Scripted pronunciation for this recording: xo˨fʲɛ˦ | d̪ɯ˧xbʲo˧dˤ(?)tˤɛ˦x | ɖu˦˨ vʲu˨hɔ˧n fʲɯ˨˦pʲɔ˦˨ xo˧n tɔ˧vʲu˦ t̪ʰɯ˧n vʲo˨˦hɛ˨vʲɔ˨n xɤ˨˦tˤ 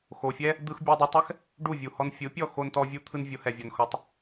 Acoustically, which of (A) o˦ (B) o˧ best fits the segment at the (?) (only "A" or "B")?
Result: B